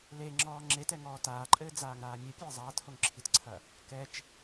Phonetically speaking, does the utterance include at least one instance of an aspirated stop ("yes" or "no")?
yes